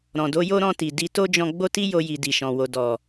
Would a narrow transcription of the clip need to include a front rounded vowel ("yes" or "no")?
no